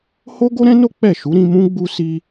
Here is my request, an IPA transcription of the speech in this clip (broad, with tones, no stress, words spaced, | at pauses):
ho˦ ɡo˦ɾɛ̃˦no˦ k͡pɛ˦˨ʃu˨˦ɾĩ˧mũ˦ ɡ͡bu˧si˧